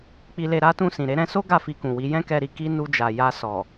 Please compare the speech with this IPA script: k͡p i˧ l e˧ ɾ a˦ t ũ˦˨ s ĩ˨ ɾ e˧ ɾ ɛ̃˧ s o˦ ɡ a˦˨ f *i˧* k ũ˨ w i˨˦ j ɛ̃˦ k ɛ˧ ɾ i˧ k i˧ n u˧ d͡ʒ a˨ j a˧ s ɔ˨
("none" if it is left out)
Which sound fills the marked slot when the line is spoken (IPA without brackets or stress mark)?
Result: i˧